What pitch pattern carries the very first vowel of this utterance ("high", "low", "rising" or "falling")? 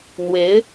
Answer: rising